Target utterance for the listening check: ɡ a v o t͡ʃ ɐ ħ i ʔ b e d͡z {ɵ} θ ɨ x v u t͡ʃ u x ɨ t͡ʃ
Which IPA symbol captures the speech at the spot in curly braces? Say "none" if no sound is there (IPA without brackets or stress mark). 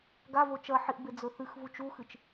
ɵ